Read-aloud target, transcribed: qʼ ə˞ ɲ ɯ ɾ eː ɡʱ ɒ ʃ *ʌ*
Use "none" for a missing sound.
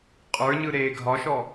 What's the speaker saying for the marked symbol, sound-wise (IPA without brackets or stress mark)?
ɔ